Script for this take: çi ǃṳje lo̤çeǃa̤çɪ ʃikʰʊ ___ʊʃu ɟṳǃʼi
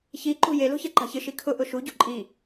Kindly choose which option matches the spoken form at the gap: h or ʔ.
ʔ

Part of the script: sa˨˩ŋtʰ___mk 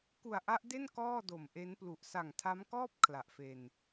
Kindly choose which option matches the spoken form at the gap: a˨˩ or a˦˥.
a˦˥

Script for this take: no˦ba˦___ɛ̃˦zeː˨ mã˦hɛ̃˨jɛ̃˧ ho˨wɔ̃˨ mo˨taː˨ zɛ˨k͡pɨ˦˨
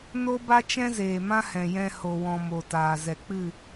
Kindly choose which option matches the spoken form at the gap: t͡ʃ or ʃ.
t͡ʃ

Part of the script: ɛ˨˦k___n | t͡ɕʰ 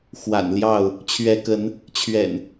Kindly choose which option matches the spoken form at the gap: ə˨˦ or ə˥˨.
ə˨˦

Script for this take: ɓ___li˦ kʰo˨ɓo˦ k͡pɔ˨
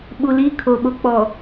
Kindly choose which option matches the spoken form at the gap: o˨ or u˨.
u˨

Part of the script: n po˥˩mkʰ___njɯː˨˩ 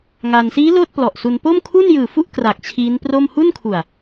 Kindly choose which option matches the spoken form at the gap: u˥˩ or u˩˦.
u˥˩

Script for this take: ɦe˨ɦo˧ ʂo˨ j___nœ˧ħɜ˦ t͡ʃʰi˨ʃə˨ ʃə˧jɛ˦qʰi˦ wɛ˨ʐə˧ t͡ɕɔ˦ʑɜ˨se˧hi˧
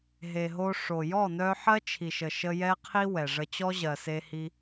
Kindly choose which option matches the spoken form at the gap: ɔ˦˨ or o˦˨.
ɔ˦˨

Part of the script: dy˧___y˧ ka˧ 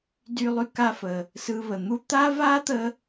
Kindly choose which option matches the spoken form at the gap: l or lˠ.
lˠ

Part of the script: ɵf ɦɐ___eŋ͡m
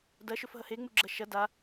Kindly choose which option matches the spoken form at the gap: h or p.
h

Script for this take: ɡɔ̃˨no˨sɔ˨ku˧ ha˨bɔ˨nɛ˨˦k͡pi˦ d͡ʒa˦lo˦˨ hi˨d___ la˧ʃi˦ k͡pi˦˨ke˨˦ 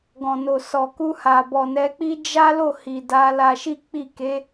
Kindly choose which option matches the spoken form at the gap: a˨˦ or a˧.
a˧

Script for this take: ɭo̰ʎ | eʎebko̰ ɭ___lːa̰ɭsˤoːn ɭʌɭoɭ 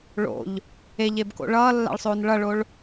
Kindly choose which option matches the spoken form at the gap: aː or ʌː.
ʌː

